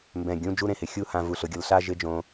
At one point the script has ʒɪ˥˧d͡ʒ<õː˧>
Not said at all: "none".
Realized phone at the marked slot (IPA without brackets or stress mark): õ˧